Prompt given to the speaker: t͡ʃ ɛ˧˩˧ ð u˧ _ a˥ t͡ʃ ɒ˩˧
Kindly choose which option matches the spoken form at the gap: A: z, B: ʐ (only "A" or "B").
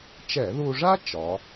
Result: B